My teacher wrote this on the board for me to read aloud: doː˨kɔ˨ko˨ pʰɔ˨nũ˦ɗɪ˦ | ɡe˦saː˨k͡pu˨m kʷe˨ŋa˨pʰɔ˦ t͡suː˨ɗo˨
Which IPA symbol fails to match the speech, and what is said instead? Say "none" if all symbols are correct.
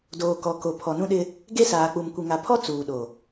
none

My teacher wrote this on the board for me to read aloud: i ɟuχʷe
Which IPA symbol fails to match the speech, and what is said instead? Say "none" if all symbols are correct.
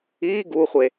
ɟ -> ɡ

